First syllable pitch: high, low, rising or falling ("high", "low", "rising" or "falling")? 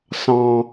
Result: high